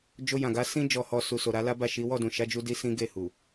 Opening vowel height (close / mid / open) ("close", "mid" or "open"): mid